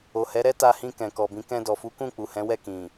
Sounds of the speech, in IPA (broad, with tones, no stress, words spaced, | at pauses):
o˨hɛ˨˦ ɾɛ˦ta˧hĩ˧ kɛ̃˨kɔ˨bĩ˨˦ kɛ̃˧dɔ˨fu˨˦kũ˦˨ k͡pu˨hɛ̃˨˦wɛ˦˨ kĩ˨